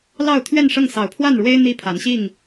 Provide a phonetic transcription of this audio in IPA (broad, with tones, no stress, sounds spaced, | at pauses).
l ɑ˥˨ ʊ̯ t̪ʰ ɥ ɛ˥˨ n ʂ ɤ˥˨ ŋ s ɑ˨˩ ʊ̯ pʰ w a˥˨ n ɻ w e˦ ɪ̯ n̪ i˦ pʰ a˨˦ n ɕ i˥˨ ŋ